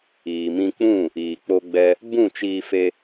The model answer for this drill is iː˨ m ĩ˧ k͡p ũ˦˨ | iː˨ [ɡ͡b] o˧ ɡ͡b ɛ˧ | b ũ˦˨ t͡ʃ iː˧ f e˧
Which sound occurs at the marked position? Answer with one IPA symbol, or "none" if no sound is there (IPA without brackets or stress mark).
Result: k͡p